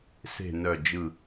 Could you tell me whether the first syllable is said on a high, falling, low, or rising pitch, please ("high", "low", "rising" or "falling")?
low